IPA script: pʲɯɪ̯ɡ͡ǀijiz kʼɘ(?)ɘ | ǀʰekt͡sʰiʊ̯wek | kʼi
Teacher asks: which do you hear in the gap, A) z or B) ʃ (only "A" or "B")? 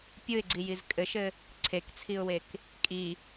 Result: B